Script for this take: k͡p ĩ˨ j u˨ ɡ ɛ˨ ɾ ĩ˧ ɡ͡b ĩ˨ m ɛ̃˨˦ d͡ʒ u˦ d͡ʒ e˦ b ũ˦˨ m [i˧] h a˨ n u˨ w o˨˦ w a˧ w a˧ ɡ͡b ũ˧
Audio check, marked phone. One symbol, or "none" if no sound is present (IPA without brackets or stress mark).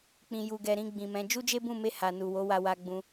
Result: e˧